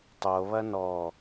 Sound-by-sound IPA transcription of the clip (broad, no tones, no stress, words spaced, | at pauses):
tˤoβɐ nɔ